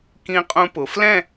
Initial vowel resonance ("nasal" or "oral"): nasal